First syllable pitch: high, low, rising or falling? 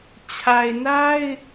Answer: low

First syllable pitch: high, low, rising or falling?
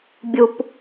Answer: low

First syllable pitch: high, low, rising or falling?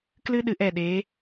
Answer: high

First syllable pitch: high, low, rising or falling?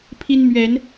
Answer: high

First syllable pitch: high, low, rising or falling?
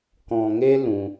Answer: low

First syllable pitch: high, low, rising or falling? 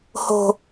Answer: high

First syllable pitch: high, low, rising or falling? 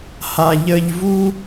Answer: high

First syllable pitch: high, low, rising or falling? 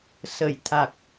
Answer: low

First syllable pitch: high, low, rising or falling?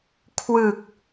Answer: low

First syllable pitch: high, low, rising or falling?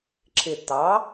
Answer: low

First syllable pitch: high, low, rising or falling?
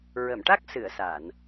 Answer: low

